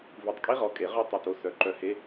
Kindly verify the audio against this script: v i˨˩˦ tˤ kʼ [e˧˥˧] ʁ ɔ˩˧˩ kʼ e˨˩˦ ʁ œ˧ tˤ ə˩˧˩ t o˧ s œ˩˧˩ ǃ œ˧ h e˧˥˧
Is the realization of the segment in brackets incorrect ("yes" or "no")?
yes